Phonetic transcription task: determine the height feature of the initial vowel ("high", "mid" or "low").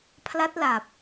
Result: low